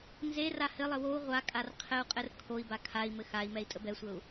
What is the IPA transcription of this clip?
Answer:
n z e r a h ɘ lˠ ə w o u̯ ʁʷ a kʼ a r qʰ ɘ u̯ qʼ ɘ r kʰ o i̯ b a kʰ a i̯ m ɘ x a i̯ m ɛ i̯ tʼ ə b ɛ sʷ ə u̯

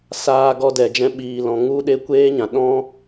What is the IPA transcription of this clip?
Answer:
s aː˧ ɡ ɔ˧ d ɛ˨ d͡ʒ ɛ̃˧ ɓ iː˨ l ɔ̃˨ ŋ u˦ ɗ e˦ kʷ eː˦ ɲ ã˨ ɗ ɔ̃˦

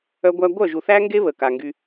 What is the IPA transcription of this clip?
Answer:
œ˦ ɡʷ æ˦ ɡʷ œ˦˨ ʒ u˨ θ æ˦ ŋ ɡ e˦ β ə˨ k a˨ ŋ ɡ y˧

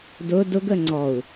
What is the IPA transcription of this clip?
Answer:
d ʊ d ʊ ɡ ə ŋ͡ǀ ɔ u̯

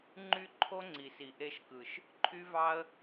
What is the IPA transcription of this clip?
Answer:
ŋ͡ǃ y˦ ǃʰ o˦ ŋ͡ǀ i˨ s i˨ ʔ e˧ ʃ k ɯ˨ ʃ | ǃʰ y˦ v ɑ˦ ə̯

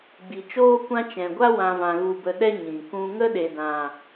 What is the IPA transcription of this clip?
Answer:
ɡ͡b i˨ t͡ʃ oː˦ kʷ ã˦ t͡ʃ ɛ̃˨ ɡʷ a˦ w ã˨ v ã˨ ɣ u˧ b ə˧ ɗ ɛ˦ ɲ ĩ˨ k ũ˦ ŋ ə˦ ɗ e˨ d ã˨

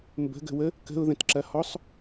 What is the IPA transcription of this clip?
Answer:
m b ə̤ ɡ ə̤ w ə | k ə̤ ʊ̯ ð ə̃ t ǁ ɐ h ɔ sˤ

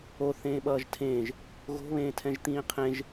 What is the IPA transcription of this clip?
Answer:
o θ ẽː ɓ ʌː ʒ tʰ ẽː ʒ | ɣ o̤ β ẽː tʰ ɛ̃ ʒ t̪ ĩː qʰ ẽ ʒ

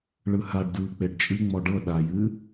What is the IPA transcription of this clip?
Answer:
ɭ ɯ h a ɖ d ɯː k͡p e ɖ t͡ʃʼ ɨ ŋ͡m ɔ ɖ ɤ ɗ a j ɨ

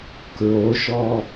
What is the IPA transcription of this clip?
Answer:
k ɹ o ʃ ɔ

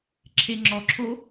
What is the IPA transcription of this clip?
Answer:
ǁʰ e ŋ͡ǁ ɔ ǁʰ o

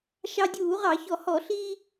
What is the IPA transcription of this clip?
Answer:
ʃ ɑ˧ dʲ uː˧˩˧ ʁ ɑ˧˩˧ ç ɔ˧˩˧ h ɔ˧˩˧ ɬ iː˧

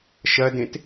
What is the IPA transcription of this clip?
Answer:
ʃ ɐ d ẽ t

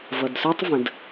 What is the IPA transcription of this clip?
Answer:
v ʌ˨ d s ə˞˦ tˤ v ə̃˨ d

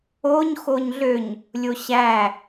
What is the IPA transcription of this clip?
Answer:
o ɲ x o ɲ ɮ ø ɲ | lʲ o ɕ æ

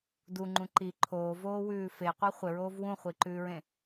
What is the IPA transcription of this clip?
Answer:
d u ŋ͡ǃ ũ ǃ i ǃʰ oː v oː w ʉː f e qʷ i χʷ ɪ ɹ oː v w ũ χʷ i ǃ ʉː ɹ ẽ

